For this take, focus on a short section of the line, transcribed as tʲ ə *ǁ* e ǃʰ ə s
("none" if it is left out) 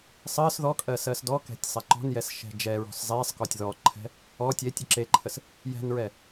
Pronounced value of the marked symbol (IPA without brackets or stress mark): ǁ